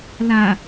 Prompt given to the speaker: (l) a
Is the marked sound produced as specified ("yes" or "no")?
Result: yes